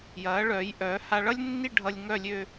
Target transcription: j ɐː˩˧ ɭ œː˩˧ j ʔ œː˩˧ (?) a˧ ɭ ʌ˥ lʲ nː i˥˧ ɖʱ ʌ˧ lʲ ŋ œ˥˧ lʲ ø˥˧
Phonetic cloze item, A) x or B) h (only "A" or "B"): B